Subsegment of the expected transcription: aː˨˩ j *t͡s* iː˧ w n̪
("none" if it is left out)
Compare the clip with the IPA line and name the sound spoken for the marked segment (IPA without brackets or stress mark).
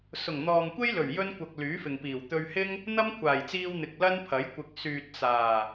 t͡s